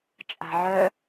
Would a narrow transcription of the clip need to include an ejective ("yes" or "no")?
yes